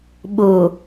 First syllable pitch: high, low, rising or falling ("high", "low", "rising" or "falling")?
low